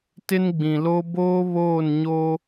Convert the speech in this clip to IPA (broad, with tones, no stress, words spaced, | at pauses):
tɪ˦nɡ͡bĩ˨lo˦ boː˦βoː˦˨nɲo˦